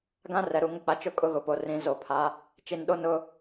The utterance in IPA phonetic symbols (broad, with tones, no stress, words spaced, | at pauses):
ɡã˦rɛ˨ɾu˨ ŋʊ˦k͡pa˨t͡ʃʊ˦ kʼʊ˦ɣʊ˨po˨ rĩ˨˦zo˨pʰa˨˦ | t͡ʃi˨nɗo˦ nʊ˦